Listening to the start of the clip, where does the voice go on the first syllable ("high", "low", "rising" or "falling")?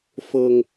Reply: high